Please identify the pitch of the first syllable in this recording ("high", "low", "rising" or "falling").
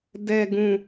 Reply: low